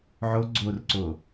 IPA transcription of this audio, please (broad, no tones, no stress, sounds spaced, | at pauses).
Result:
ʕ o ɡ͡ǀ o r ǀ o